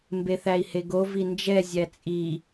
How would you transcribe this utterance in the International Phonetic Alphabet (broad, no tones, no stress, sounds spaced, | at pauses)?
m b e θ æ i̯ h e ɡ o v i n d͡ʒ ɛ zʲ æ t͡sʼ i